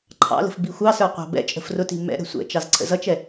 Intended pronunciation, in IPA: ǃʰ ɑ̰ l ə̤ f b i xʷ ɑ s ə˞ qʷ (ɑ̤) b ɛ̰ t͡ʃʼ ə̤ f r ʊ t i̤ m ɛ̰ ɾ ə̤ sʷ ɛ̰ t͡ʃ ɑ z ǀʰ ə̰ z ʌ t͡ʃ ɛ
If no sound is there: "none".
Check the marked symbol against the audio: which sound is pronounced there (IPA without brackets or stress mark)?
ɑ̤